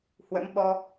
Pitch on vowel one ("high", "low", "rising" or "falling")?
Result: rising